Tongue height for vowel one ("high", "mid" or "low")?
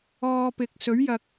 mid